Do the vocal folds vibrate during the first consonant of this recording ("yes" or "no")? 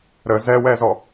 yes